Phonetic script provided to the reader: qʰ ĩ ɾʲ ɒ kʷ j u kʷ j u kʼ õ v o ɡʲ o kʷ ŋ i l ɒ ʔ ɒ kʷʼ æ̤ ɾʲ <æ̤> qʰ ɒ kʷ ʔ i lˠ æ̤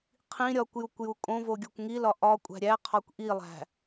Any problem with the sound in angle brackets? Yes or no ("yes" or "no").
yes